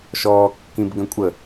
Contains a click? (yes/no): no